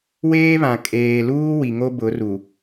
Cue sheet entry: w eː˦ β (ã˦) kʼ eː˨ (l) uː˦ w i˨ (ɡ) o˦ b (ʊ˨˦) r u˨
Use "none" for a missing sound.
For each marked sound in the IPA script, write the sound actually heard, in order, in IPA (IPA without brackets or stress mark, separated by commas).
ã˨, l, ŋ, ʊ˨˦